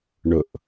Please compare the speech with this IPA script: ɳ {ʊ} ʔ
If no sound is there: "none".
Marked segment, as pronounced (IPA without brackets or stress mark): ʊ